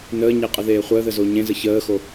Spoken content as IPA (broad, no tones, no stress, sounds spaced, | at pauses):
n əː ɲ e qʼ ə ð eː χʷ əː ð ə z o ɲ ẽ z ə ç əː x o